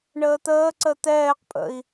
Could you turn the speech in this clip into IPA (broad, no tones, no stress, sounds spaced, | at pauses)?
ɳ əː t̪ əː ǀ ə t̪ ɛː q pʼ ə̰ i̯